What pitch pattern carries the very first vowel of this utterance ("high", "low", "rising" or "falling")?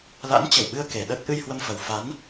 rising